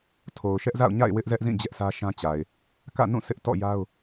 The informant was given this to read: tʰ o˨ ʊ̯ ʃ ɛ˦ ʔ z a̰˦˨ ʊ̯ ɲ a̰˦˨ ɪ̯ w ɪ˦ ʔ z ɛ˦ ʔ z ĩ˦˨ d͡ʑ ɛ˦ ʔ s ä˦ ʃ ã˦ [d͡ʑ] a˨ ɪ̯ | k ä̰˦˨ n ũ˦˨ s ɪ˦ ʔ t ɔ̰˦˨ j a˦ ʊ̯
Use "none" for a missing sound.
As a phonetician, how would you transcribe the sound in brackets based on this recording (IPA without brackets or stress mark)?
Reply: t͡ɕ